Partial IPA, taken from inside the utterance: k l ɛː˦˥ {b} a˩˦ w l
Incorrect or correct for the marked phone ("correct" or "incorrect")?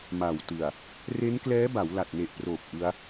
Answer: correct